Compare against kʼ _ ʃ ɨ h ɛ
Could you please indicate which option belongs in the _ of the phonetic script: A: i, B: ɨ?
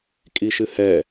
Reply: A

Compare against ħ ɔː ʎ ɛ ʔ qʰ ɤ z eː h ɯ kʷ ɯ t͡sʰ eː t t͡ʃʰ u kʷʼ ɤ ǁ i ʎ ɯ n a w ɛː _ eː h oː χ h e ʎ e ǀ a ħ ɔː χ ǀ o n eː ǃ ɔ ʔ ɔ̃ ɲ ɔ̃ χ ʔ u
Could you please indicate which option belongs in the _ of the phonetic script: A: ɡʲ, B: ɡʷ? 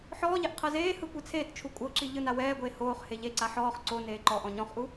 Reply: B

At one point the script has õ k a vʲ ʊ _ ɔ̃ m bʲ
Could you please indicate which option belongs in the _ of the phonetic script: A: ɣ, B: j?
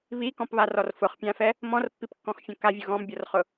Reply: A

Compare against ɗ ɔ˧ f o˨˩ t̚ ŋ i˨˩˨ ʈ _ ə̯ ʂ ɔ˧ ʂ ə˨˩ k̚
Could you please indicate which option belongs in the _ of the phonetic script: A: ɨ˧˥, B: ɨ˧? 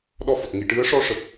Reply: A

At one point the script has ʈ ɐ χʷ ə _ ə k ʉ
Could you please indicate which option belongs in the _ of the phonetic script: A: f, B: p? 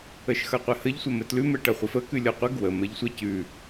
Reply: A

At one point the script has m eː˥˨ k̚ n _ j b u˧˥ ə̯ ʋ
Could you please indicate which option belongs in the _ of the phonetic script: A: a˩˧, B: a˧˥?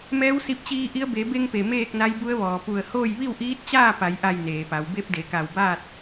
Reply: B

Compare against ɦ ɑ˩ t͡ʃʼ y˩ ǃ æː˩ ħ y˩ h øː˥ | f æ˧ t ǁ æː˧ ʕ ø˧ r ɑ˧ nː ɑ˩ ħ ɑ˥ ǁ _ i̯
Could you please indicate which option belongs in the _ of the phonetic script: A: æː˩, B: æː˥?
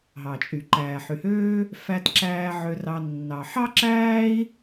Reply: B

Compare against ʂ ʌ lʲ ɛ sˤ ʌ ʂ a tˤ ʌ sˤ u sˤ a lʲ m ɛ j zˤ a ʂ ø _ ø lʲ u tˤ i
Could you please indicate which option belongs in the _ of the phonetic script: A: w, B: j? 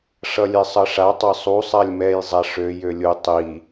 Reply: B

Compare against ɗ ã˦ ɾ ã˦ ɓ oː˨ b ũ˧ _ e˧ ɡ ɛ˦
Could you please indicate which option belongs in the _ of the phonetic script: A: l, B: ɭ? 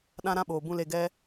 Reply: A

